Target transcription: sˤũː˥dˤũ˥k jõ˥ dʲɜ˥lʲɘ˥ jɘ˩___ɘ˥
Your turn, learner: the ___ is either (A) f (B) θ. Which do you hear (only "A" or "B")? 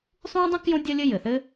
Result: B